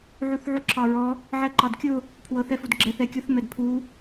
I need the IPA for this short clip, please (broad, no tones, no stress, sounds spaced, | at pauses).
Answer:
ʕ u θ ʕ u ǁʰ ɑ ɹ ɔ | ʕ ɛ ǃ ɑ d kʲ ʊ | pʰ w ɤ θ ɛ f u d ɡ͡ǁ ɛ θ ɛ kʲ ʊ θ m ɛ d pʰ u